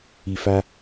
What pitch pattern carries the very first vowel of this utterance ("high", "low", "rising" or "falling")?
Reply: low